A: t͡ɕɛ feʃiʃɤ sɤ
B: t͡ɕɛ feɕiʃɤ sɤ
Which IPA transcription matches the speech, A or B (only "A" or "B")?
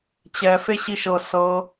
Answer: B